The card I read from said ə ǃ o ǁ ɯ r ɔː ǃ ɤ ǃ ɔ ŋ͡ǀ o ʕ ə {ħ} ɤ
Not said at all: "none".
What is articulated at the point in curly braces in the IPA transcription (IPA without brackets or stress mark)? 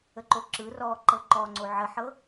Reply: ħ